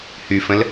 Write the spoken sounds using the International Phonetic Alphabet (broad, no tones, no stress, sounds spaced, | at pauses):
h y f ə̃ l